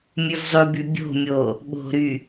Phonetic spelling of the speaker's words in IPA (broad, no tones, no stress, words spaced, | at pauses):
mʲʉvzˤʉby bʲo̤mʲo | ɓo̤ɾy